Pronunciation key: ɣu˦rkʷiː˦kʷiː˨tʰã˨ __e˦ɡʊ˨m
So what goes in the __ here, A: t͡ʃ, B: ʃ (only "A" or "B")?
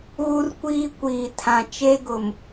A